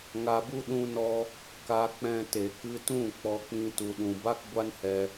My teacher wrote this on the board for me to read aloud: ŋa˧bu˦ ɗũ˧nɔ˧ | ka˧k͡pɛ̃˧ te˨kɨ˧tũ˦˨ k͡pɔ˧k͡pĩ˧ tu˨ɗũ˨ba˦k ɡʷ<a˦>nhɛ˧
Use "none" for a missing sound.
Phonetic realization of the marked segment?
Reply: a˦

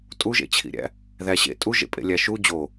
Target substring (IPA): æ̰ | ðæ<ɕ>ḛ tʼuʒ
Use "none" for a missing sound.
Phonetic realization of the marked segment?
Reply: ɕ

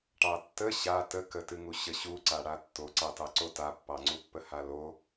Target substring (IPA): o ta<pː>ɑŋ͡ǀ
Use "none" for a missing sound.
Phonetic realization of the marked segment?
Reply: pː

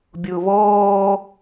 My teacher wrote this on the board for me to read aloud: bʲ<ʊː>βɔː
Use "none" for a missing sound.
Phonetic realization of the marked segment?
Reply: ʊː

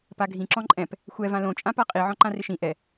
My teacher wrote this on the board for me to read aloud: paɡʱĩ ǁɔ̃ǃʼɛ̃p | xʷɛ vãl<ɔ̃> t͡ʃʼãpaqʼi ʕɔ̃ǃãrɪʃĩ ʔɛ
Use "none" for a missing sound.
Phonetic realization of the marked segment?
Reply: õ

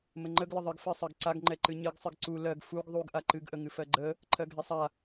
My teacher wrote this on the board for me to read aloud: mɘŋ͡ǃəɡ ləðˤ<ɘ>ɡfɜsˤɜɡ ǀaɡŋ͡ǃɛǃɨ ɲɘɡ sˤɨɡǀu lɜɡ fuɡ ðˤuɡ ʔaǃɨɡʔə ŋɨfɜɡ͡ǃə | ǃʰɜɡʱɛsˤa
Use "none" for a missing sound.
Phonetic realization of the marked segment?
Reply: ɘ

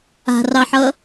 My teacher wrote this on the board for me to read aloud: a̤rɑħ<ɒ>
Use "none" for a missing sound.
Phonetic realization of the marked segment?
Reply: ʌ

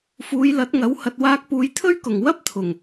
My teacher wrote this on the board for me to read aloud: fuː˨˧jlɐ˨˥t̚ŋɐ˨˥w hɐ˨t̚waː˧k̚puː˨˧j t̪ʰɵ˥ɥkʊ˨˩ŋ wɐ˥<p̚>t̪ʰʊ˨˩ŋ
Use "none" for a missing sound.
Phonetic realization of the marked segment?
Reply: p̚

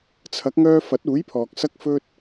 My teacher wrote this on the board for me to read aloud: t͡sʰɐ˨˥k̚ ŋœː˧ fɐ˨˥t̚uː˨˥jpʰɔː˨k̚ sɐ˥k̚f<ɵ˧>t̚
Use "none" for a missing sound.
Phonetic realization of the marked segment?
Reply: ɵ˥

